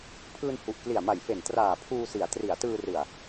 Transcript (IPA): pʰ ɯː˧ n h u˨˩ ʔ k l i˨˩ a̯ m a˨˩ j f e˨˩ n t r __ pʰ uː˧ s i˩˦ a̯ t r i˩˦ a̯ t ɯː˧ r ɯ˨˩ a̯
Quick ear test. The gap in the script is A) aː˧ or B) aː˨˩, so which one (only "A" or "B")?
B